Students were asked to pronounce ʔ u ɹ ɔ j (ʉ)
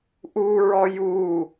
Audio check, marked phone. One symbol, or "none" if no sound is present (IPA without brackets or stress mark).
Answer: u